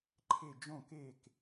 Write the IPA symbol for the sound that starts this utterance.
ǃʰ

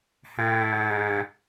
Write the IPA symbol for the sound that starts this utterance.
h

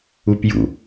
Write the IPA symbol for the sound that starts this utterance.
u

